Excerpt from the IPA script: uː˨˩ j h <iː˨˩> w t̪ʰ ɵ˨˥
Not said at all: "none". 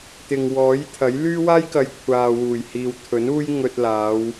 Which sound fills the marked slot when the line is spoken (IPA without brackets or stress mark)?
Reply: iː˨